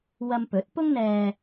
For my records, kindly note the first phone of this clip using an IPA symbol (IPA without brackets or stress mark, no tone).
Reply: w